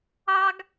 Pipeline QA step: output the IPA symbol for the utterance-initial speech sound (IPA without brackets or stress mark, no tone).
ɑ